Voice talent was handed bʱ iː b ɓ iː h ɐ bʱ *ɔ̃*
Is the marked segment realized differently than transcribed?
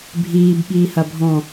no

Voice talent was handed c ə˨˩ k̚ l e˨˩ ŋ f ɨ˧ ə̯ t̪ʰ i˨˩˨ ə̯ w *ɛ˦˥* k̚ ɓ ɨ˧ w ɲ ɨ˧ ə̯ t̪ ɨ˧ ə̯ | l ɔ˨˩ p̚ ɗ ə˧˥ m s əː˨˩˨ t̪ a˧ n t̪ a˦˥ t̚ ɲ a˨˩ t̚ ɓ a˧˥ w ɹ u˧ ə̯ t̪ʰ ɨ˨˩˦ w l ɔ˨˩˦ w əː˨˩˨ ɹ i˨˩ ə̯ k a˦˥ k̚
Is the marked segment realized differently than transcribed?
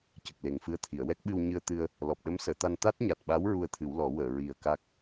no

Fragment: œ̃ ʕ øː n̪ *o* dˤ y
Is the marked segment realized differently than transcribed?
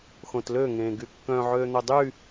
no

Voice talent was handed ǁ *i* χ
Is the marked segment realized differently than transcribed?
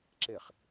yes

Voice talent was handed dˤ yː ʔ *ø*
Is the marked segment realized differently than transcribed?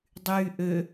no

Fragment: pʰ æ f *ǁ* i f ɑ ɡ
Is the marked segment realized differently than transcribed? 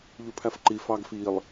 yes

